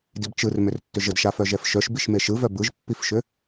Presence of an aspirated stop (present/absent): absent